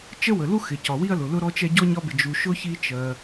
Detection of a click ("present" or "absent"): absent